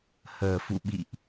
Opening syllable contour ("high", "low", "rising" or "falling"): low